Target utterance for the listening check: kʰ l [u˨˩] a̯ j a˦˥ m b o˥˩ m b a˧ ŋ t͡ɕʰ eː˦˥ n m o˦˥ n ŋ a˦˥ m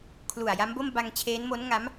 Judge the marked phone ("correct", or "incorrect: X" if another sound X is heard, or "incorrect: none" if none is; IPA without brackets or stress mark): correct